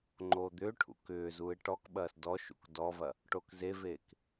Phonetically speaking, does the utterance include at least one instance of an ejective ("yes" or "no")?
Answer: no